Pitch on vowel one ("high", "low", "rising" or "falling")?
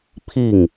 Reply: falling